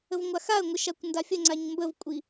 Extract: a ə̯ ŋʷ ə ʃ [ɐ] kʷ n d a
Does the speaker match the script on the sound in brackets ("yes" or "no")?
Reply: no